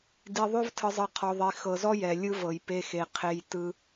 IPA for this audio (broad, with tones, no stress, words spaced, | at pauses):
di˨ðˤo˦vtʰɯ˨zˤɯ˨ qʰɔ˨ðˤi˨ xɤ˨zɔ˦ jɛ˨lʲɯ˦vɤ˨j pe˦xe˨qʰe˦j tɯ˦